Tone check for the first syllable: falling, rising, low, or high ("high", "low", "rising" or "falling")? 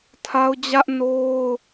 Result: high